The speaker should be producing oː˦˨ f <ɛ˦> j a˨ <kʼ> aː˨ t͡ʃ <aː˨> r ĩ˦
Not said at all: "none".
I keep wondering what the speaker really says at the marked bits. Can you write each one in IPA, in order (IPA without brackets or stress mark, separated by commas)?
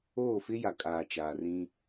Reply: ɪ˦, kʼ, aː˨